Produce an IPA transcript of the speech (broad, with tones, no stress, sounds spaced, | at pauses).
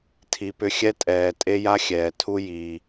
tʰ i˨ p ʏ˧ xʲ ɛ˦ tʼ ɛː˨ tʼ e˦ j a˦ xʲ ɛː˨ tʰ u˦ j iː˧